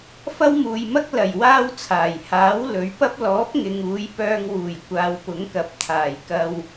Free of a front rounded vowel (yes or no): no